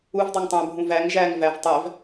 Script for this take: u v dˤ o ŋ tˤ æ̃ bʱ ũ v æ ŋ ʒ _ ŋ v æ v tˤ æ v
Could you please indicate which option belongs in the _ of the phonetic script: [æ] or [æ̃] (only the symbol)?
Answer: æ